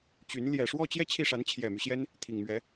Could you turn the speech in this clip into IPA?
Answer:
t͡ɕ y˧˥ n l j ɛ˨˩ ʂ w ɔ˥˧ t͡ɕ j ɛ˥˧ t͡ɕʰ i˥˩ ʂ a˧˥ n t͡ɕʰ j ɛ˨˩ m y˦ ɕ j ɛ˥ n | t̪ʰ i˨˩ ŋ m ɥ ɛ˧˥

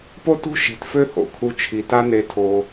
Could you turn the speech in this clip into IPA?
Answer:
p o˦ t ṳ˦ ʃ i̤˩ t f ø˦ h o̰˩ kʰ u˨ t͡ʃʰ i˩ t a˦ n e˨ tʰ o˩

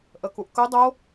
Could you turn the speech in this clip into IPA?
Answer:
ʔ ə k u ʔ k ɵ dˤ o

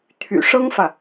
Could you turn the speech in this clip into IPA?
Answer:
t̪ʰ y̰˨˩ ʂ ɤ˥ ŋ f ä˨

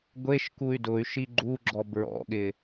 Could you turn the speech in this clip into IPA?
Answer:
ɡʷ e ʃ k u y̯ d ʊ y̯ ʃ i ɡ͡ǃ u ɡ͡ǁ ɔ b ɹ ɔ̰ ɠ ɪ

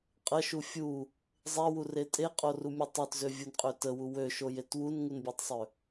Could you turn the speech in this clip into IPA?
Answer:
qʼ ə ʃ u fʲ u | zˤ e w u r e tʼ e qʼ o r u mʲ o tˤ ø t z ø vʲ u n qʼ ø t ə w u w ø ʃ o j e t w u n ŋ u n bʲ ø tˤ sˤ ø

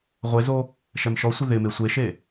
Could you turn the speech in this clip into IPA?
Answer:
ʁʷ e z o | ʃ ɛ m ʃ ɔ sʷ ɪ ð ɪ m e sʷ e ʃ e

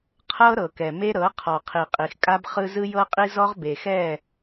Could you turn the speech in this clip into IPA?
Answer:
qʰ ɤ˦ ɾ ɤ˨ k ɛ˨ m e˦ ɾ ɤ˨˦ qʰ ɔ˨ qʰ i˨ qʼ i˨ x kʼ a˦ b χ ɯ˦ z ɯ˦ j ɤ˦ qʼ i˦ z ɔ˦ ʁ b e˨ x ɛ˦˨

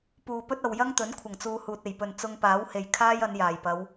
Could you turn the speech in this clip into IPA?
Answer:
p uː˨ p ɵ˥ t̚ ɐ˨ w j ɐ˥ ŋ t̪ ɵ˨˥ n kʷʰ ɐ˨˩ ŋ t͡s uː˨ h uː˨ t̚ e˨˩ j p ɵ˨˩ n t͡s ʊ˧ ŋ p aː˨˥ w h e˨ j kʰ aː˥ j ɐ˨˧ n j aː˨˩ j p ɐ˨˧ w

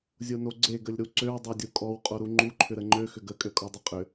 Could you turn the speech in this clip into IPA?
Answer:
zʲ o n o ɡ͡ǀ e ɡ ə lʲ ɾ u ǀ ø w dˤ ø dʲ o kʼ ɔ w qʼ o ɾ u ŋ͡ǃ u ǃʰ ʏ ɾ ə ŋ͡ǃ ø x ʏ ɡ ə kʼ ø kʼ ɔ dˤ ʏ qʼ ʏ

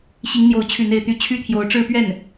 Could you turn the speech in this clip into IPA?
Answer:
ɕ i˧˥ ŋ n̪ j o˧˥ ʊ̯ t͡ɕʰ y˥˧ n̪ e˥˧ ɪ̯ t̪ y˥˩ t͡ɕʰ y˥ t̪ʰ j o˧˥ ʊ̯ ʈ͡ʂ ɻ̩˥˧ p ɥ ɛ˥˩ n

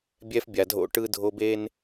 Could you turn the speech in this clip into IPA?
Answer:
bʲ ɛ˦ f bʲ a˨ dʱ o̰˦ ʈ ɯ˦ dʱ o˦ b e˦ n

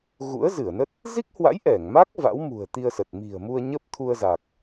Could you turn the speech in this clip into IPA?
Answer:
ɣ ṵ˧˥ ə̯ z ɨ˧˩ ə̯ n ə˦˥ t̚ | z i˦˥ k̚ h w a̰˧˥ j ʔ ɛ˧˩ ŋ m a˦˥ k̚ v a̰˧˥ w m ṳ˨˩ ə̯ t̪ i˧ ə̯ s ə˨˩ t̚ m i̤˨˩ ə̯ m u˧ ə̯ ɲ ə˦˥ p̚ t̪ʰ u˧ ə̯ z a˨˩ k̚

